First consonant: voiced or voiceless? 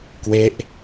voiceless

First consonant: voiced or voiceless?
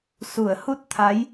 voiceless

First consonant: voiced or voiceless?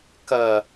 voiceless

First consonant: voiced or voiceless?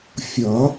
voiceless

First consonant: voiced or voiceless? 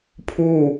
voiceless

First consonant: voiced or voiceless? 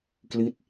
voiceless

